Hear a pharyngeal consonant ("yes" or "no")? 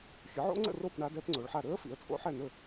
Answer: yes